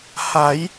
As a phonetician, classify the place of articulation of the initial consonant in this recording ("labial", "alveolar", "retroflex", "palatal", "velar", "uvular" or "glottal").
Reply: glottal